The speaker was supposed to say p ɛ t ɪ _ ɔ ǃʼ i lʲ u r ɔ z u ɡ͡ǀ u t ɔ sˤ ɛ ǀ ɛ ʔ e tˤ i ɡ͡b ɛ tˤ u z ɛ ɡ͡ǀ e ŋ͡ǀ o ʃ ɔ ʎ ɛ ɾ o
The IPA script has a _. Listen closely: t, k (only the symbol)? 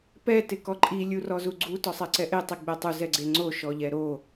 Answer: k